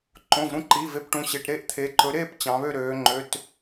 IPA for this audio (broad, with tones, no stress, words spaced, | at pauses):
ǃõ˩˧˩vɾũ˥˨ǃiː˩˧˩ve˥˨p ʈũ˩˧˩ɕe˩˧˩ʈ ɾe˥˨ʔt̪ʰeː˩˧ǃɵ˩˧ ɾeː˥˨p t͡ɕɑ̃˩˧βø˥˨ɾøː˩˧ŋ͡ǃø˩˧˩t